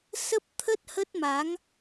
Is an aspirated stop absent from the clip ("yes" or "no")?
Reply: no